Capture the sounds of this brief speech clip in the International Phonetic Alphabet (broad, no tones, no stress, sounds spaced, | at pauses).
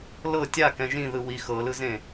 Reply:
l ɤ tʲ a k ɛ̃ ʒ ĩ ð ɯ w i x ɤ l ɯ z ẽ